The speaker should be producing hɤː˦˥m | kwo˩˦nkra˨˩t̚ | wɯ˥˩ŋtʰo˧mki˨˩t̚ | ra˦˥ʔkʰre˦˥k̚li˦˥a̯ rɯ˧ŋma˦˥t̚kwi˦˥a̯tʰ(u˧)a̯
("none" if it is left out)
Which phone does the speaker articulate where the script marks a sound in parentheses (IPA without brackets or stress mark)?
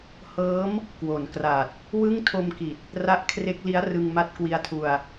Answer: u˧